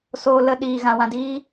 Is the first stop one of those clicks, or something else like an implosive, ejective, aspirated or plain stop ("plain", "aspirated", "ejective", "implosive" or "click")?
implosive